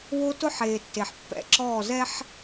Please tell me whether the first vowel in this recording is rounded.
yes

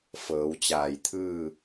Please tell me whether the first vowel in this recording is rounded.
no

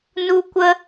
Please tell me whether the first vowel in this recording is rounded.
yes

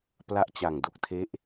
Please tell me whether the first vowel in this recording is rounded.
no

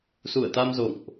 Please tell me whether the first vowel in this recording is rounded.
yes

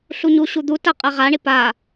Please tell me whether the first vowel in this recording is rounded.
yes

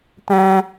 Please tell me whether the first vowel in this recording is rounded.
no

